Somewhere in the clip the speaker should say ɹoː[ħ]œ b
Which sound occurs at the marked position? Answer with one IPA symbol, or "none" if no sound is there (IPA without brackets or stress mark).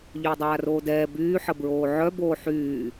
ʕ